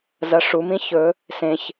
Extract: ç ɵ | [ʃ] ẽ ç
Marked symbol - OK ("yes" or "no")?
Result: no